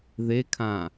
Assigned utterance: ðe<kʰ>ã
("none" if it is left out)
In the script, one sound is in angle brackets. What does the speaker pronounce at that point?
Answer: kʰ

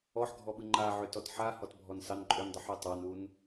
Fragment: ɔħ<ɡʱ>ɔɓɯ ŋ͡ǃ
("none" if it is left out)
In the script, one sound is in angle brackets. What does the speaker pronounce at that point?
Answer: ɡʱ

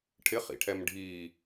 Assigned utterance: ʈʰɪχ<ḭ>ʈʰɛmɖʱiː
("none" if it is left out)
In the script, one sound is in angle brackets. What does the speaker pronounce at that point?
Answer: ḭ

